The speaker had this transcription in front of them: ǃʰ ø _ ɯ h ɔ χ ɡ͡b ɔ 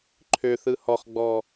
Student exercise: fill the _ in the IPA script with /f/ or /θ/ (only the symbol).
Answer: θ